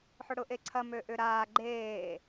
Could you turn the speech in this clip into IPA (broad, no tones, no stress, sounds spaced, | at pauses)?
ħ ʊ ɽ ʊ ʔ e ǀʰ ɐ m ø ʔ ʏ ɾ aː ɡ͡ǃ eː